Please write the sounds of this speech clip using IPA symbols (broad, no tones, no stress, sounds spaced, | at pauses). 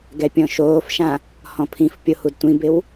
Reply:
ɡ ɛ pʲ ɔ̃ ʃ oː f ʃ ã | h ɔ̃ pʰ ĩ f pʲ o h u d tʷ ĩ b ɪ w